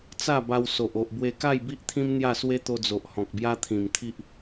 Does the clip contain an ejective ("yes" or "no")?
no